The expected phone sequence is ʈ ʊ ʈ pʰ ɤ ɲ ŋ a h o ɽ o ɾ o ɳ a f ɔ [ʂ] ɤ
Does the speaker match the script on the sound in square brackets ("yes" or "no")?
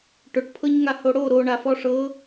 yes